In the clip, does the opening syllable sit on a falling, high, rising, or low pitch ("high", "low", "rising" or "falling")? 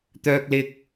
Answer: high